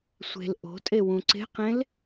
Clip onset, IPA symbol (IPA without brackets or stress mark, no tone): sʷ